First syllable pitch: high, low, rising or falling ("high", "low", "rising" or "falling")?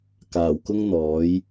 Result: low